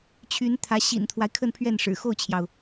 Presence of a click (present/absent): absent